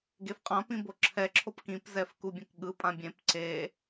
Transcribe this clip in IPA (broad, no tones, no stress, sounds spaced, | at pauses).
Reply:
ɡ e f qʼ ã p ĩ b o ǁʰ ɛ ǁʰ o p k ĩ p z ɛ f k u bʲ ɛ̃ k ɠ ɯ pʼ ã bʲ ẽ p ǀ e